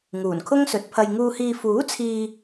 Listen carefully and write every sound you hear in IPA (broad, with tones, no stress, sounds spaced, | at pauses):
ŋ uː˨˩ n kʰ ʊ˥ ŋ s ɵ˨˥ t̚ pʰ ɐ˧ j ŋ uː˨ h iː˨ f uː˨˥ t͡sʰ iː˧